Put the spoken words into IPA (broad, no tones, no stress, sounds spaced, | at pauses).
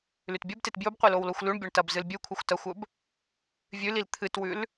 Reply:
l ʉ t bʲ ɵ b t e t b j ɵ b qʷ e l o w l o xʷ l ʉ ɳ bʲ o ɳ t ɐ b z ɨ l bʲ ʉ kʷʰ ɨ xʷ t ɐ xʷ ɵ b | vʲ ʉ l i l t̪ʰ ɨ t w ʉ l